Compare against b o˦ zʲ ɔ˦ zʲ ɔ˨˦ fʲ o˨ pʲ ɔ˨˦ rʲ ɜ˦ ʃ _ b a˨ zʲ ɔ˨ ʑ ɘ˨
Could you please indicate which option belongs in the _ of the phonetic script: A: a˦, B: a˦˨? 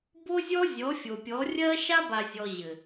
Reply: A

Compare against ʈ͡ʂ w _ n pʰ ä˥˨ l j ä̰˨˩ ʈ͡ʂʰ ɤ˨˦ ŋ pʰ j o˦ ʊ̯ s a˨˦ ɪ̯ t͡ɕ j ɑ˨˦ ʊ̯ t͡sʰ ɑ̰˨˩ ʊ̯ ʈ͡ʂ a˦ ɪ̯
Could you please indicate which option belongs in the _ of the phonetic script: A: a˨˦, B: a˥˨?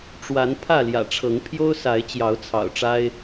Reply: A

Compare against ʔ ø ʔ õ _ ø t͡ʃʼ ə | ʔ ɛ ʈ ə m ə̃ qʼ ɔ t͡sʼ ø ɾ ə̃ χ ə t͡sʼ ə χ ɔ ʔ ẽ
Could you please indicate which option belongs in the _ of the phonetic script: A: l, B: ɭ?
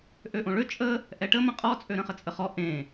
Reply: B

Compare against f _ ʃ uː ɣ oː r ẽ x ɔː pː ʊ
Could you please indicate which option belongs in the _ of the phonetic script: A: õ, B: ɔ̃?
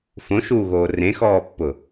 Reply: A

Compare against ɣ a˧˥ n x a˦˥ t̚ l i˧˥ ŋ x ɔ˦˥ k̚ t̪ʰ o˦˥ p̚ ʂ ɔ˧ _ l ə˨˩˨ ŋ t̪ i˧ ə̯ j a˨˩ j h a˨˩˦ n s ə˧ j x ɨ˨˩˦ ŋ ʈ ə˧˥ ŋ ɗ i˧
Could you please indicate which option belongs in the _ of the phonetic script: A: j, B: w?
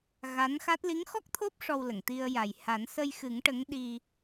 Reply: B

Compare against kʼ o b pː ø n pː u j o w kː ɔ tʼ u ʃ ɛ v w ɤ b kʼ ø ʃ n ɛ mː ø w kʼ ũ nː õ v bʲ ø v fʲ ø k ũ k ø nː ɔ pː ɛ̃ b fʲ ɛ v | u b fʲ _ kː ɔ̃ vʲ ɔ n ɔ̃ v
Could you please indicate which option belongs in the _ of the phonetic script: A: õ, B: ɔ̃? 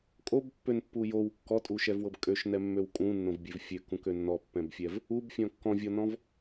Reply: B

